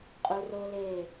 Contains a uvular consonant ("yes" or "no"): yes